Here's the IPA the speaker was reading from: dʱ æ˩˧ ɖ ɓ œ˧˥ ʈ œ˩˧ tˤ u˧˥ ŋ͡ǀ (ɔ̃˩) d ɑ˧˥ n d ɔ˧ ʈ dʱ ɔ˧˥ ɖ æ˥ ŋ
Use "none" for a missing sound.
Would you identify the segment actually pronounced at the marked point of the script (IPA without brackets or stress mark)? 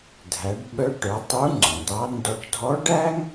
ɔ̃˩